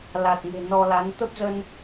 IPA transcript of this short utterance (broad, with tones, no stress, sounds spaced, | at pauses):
l a˨˩ t̚ ŋ e̤˨˩ n ɔ˧ l a˨˦ n t̪ ə˦˥ p̚ z ə˧ n